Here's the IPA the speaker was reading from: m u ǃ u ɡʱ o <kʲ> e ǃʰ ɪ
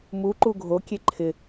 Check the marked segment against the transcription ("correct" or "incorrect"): correct